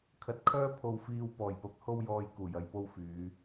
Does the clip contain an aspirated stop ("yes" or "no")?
yes